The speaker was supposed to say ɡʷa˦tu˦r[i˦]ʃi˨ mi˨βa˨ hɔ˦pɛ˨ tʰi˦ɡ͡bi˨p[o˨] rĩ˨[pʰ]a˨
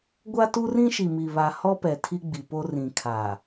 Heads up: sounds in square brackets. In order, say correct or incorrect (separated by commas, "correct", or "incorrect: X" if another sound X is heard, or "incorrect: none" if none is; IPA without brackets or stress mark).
incorrect: ĩ˦, incorrect: o˦, incorrect: kʰ